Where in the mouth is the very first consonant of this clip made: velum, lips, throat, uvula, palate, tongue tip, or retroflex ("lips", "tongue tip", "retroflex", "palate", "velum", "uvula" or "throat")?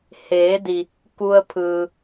throat